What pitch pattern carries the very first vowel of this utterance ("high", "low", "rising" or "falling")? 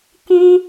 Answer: high